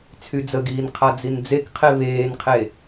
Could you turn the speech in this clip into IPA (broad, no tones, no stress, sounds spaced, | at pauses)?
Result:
t͡sʰ y d͡z ə ɡ iː n qʰ a d͡z i n d͡z e k qʰ e β eː n qʰ e